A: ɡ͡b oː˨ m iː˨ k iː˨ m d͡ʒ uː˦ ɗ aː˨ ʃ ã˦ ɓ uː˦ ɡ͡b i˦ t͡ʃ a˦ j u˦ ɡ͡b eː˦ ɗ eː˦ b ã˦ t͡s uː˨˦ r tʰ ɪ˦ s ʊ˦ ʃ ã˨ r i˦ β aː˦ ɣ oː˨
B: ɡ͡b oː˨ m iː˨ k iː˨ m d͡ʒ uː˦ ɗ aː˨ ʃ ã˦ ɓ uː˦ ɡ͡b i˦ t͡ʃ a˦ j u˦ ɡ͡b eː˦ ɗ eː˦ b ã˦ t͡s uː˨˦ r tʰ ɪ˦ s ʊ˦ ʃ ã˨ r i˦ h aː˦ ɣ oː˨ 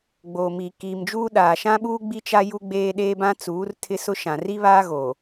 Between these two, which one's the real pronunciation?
A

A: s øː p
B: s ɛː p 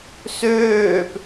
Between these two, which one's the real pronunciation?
A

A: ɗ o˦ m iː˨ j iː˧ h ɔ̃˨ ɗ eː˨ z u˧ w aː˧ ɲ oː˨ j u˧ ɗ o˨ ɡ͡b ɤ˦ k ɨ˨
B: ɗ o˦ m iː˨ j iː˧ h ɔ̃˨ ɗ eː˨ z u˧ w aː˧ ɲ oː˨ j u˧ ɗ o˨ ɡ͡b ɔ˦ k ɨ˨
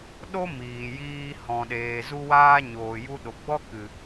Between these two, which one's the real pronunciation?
B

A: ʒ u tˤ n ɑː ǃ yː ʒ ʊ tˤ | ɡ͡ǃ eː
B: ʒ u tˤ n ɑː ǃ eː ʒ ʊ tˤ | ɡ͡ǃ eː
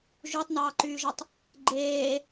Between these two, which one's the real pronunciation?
A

